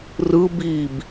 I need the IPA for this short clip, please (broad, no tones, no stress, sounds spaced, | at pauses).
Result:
r ɯ b i b